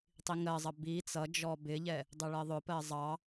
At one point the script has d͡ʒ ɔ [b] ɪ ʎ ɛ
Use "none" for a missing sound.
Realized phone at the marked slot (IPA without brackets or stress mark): b